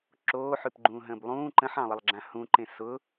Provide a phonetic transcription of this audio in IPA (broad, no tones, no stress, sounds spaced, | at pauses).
ǁ oː ħ ʉ p ɡ͡ǃ ũː ɦ ə̃ː b lˠ ũː ǃ ə̃ ħ ɑ̃ lˠ ə lˠ ɡ͡ǁ ã h ũ ǃ ẽ s ʊ